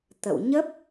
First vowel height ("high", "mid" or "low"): mid